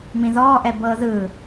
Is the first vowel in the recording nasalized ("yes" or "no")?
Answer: yes